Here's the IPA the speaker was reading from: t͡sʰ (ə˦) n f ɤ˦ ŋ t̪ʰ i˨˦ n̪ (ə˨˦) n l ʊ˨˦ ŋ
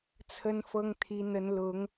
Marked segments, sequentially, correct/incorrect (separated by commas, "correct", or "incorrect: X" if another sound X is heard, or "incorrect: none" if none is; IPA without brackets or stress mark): correct, correct